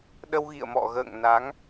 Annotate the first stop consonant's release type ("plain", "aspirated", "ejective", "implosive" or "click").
implosive